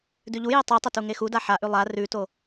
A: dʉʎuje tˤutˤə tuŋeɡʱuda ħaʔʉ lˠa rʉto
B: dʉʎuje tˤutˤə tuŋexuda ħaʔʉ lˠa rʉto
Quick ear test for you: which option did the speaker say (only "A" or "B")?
B